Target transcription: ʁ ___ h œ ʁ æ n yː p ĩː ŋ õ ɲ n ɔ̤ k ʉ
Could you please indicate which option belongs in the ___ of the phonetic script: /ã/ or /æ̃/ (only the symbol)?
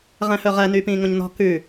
æ̃